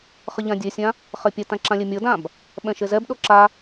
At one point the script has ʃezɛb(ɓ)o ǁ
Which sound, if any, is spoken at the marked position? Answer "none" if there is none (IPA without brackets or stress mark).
ɗ